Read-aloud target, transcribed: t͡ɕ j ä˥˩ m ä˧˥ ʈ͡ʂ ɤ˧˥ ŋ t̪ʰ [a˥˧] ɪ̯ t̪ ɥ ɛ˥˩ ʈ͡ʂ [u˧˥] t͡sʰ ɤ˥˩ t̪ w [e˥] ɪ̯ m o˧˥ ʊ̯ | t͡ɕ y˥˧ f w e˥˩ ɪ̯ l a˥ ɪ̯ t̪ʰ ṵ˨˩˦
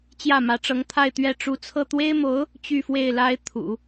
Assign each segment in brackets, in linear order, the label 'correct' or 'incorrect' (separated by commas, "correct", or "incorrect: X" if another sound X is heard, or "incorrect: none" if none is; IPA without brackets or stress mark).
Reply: correct, correct, correct